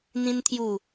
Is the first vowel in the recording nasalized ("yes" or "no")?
yes